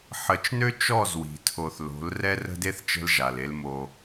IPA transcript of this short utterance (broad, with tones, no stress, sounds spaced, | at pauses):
ħ ə˨˦ t͡ʃ n ø˦ t͡ʃ ɔ˦˨ z w i̤˨ tʰ o˨ θ l o̤˨˦ l r ɛ˦ r ə̤˦ d e˦ θ t͡ʃ ə̤˦ l ʒ a˨ l e˦ l m o˦